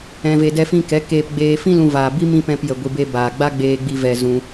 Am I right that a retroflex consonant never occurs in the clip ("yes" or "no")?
yes